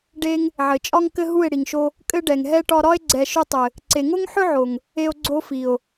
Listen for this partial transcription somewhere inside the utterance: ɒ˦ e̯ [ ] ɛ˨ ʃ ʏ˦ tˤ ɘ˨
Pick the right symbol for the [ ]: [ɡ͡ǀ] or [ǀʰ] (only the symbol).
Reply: ɡ͡ǀ